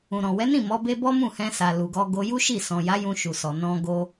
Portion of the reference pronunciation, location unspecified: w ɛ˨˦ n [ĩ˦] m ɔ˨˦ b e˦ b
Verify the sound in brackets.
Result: incorrect: ĩ˦˨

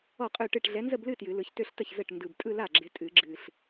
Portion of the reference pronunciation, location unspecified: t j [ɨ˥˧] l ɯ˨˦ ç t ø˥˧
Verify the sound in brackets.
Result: incorrect: ɨ˨˩˦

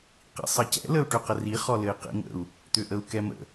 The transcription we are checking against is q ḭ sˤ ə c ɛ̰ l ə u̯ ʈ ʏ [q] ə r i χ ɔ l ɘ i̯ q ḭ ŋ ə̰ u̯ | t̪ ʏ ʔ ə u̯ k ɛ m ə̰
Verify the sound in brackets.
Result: correct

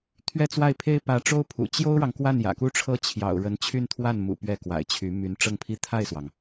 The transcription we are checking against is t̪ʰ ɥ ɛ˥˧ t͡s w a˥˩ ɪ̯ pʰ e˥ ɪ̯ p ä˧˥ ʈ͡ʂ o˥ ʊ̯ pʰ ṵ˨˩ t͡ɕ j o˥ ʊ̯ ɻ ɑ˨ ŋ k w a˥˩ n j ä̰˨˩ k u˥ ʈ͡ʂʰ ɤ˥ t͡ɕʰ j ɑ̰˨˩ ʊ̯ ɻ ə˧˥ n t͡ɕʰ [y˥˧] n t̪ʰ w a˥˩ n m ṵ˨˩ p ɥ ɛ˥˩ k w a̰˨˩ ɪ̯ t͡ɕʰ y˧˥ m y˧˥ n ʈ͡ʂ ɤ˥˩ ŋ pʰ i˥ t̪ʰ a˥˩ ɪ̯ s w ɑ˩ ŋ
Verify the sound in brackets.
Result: correct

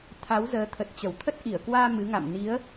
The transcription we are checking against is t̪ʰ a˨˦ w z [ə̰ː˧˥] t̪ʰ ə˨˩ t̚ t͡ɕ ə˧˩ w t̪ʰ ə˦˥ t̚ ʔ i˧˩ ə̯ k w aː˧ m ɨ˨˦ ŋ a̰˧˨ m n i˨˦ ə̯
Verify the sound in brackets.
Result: incorrect: əː˨˦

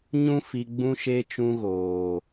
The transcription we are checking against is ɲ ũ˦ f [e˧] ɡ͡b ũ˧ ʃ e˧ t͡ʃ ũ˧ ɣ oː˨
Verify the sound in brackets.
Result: incorrect: i˧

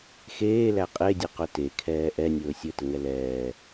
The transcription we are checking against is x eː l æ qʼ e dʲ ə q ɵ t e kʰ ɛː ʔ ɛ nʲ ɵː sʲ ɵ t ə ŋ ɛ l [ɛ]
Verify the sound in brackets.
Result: incorrect: ɛː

